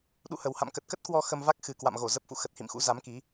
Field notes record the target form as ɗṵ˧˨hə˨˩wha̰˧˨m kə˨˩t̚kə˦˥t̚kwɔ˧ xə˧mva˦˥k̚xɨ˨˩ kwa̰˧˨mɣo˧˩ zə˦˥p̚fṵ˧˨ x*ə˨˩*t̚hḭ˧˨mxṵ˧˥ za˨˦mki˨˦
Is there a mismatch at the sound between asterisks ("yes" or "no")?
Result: no